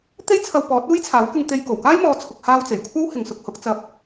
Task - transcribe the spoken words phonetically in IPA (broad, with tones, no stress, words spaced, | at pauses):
t̪e˥jt͡sʰɐ˧wpɔː˨˥t̚ uː˥jt͡sʰaː˨˥w kɪ˧ŋt̪e˧jko˨˩w kaː˥jmɔː˨˧t͡sʰʊ˨k̚haː˧w t͡se˨˩jkʷʰɐ˥w hɪ˨ŋsʊ˧k̚hʊ˨˥k̚t͡sɐ˧p̚